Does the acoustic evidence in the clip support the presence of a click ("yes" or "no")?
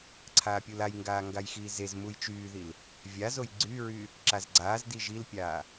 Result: yes